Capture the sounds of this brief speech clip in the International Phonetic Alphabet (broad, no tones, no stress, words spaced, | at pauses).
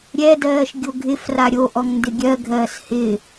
ɾʲɛdɜːʃ ɡʲoɡʱɪfra ɾʲoʔɔŋ ndɪɡʲɜɡʱɜːs hɪ